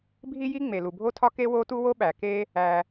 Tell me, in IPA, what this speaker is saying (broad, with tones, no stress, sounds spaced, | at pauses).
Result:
bʱ i˥ j i˥ ŋ͡m e˩ l u˩ bʱ o˥ tʰ ɒ˥ k e˥ w o˥ t u˥ w o˥ ɓ æ˩ k e˥ | æ˩